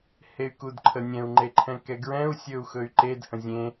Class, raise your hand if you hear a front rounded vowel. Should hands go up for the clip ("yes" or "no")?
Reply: yes